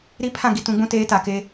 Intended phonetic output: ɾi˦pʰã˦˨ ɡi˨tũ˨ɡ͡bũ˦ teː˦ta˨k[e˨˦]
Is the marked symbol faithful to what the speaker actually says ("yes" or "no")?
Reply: no